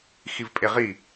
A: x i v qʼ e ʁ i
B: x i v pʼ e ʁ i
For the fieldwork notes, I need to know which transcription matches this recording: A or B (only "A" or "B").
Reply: B